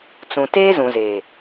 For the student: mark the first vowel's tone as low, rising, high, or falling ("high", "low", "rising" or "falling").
low